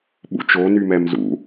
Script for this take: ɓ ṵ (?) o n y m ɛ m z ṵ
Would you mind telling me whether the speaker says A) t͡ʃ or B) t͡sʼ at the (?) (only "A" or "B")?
A